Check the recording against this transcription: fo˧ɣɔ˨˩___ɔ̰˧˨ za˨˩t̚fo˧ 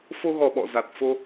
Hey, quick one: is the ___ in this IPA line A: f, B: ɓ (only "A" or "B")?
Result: B